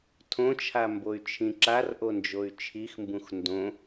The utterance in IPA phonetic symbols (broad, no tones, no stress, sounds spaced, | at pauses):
tʰ õ t͡ʃʰ a m b o y̯ t͡ʃʰ ĩ ǁ a r ʔ o n d͡ʒ o y̯ t͡ʃʰ i x m b ũ x n d õ